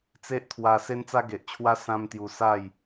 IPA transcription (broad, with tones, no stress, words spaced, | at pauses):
t͡se˦ʔt̪ʰwa˧ se˦nt͡sa˦ɡe˨ʔt͡ɕʰwa˦ sã˦mt̪ju˧ sa˥˧j